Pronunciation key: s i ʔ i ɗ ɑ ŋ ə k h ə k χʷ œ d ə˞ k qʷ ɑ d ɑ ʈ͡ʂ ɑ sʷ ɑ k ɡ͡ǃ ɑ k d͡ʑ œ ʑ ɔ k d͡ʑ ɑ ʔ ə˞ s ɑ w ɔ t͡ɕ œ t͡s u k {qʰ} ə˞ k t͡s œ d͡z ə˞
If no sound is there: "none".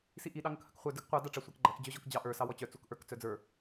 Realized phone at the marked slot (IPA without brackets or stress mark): ʔ